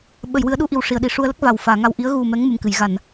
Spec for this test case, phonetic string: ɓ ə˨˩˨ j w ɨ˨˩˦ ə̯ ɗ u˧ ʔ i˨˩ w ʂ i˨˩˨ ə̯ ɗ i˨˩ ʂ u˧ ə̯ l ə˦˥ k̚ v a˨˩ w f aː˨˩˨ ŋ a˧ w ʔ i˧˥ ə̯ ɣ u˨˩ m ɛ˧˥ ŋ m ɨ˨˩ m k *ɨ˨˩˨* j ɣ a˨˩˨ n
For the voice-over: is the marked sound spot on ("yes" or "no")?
yes